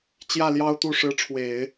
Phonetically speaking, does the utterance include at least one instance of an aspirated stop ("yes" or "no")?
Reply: yes